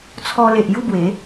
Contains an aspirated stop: yes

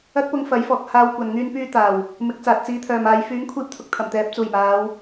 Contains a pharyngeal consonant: no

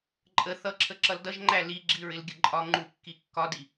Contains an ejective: yes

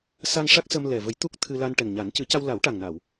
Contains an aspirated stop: yes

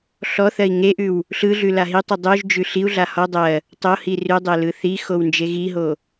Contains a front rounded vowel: no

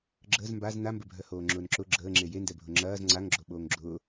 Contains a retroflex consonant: no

